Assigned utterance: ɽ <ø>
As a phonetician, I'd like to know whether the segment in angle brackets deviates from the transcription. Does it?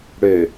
no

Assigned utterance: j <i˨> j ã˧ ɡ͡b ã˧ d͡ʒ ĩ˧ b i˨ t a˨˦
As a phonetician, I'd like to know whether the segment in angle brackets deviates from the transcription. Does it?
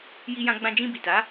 yes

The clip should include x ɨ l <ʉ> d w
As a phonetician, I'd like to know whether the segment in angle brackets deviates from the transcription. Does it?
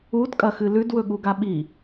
no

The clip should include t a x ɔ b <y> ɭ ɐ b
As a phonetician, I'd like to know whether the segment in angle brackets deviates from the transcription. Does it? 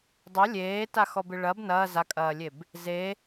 yes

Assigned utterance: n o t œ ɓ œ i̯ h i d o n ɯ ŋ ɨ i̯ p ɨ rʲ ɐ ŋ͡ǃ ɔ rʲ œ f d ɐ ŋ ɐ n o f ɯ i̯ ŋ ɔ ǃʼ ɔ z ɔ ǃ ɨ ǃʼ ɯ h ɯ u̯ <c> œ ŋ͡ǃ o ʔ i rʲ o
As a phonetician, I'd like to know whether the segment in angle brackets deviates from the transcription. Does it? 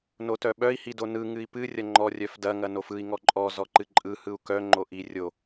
yes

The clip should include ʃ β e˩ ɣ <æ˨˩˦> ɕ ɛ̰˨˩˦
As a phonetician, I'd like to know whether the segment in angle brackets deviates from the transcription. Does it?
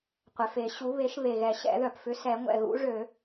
yes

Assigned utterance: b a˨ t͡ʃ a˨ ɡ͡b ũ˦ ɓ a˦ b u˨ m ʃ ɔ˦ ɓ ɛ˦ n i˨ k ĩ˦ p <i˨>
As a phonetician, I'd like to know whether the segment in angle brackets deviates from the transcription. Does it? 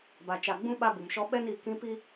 yes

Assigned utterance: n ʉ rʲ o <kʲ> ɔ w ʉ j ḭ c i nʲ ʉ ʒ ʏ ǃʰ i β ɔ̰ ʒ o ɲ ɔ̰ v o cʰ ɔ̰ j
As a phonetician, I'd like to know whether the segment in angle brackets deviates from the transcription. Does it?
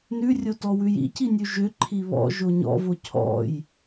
yes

